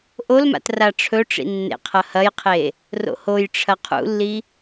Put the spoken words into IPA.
ʔ o l m a̰ t r a ʈ͡ʂʰ ɵ ʈ͡ʂ ḭ nː ḛ qʰ ɐ h ɐ j qʰ e | r o̰ h o j ʈ͡ʂʰ ɐ qʰ ṵ lː i

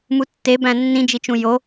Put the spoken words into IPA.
m u tː e b æ̃ nː ĩ d͡ʒ i t͡ʃ ũ j o

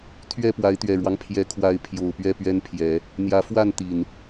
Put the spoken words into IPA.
t̪ʰ ɥ ɛ˥˨ p w a˨˦ ɪ̯ t̪ ɥ ɛ˨˩ ɻ w ɑ˦ ŋ pʰ j ɛ˨˦ kʰ w a˨˦ ɪ̯ pʰ j o˨˩ ʊ̯ p ɥ ɛ˥˨ p ɥ ɛ˦ n pʰ j ɛ˨˦ | n̪ j ä˨˦ f w a˥˨ n t̪ i˨˩ n

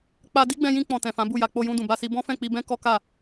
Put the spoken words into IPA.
k͡p a˧ d i˦ ɡ͡b ɛ̃˧ j ĩ˧ k͡p ɔ̃˨ t ɛ̃˨ f ã˨˦ b u˦˨ j a˧ k͡p o˧ j ũ˧ d ũ˨ b a˧ s i˧ b ɔ̃˦ f ɛ̃˦˨ k͡p i˧ b ɛ̃˦ k ɔ˦ k a˦˨

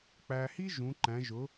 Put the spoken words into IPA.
k͡p æ˧ h i˥ ʒ ũ˧˥ ǃ æ̃˧˥ ʒ ʊ˧˥

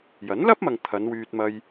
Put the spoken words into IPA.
j ɐ˨˥ n l ɐ˥ p̚ m ɐ˨ ŋ t̪ʰ ɐ˨˧ n w yː˧ t̚ m ɐ˧ j

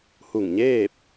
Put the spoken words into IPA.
h u˧˩ ŋ ɲ eː˥˨ p̚

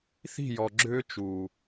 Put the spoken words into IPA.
θ i̤˦˨ j ɔ˨ ɡ͡ǁ ʏː˦ t͡ʃ u˨

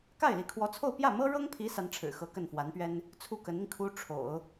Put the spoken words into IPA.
k a˥˩ ɪ̯ l i˧˥ kʰ w ɔ˧˥ t͡sʰ o˥˧ ʊ̯ p j ä˥˩ m ɤ˥ ɻ ɤ˥ ŋ pʰ i˧˥ s a˧˥ n ʈ͡ʂʰ ɻ̩˨˩ x ɤ˧˥ k ə˥˩ n f w a˧˥ n p ɥ ɛ˥ n | t͡sʰ u˥˩ k ə˧˥ n i˧ ŋ kʰ u˥ ʈ͡ʂʰ o̰˨˩˦ ʊ̯

